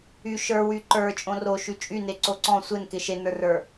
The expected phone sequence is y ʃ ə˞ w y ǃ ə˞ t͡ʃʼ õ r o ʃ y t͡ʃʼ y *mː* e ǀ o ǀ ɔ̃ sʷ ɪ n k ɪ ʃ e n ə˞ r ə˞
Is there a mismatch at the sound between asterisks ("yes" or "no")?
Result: yes